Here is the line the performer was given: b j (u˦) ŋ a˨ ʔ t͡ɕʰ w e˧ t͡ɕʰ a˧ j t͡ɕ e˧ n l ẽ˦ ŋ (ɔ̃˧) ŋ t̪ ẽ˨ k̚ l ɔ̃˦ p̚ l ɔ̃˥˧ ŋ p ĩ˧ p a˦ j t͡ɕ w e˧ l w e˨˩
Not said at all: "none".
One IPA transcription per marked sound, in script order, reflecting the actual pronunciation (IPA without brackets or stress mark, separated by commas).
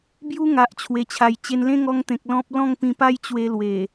u˦, ɔ˧